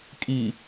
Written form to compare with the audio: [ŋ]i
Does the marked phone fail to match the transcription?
yes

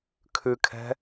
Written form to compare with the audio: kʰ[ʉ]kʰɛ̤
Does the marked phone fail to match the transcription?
no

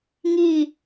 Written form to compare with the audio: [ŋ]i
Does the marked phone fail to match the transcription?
no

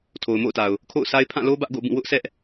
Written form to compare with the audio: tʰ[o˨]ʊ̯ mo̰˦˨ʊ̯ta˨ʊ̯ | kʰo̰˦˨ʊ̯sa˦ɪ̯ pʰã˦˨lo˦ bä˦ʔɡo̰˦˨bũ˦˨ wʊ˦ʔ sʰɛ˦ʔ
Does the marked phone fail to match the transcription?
no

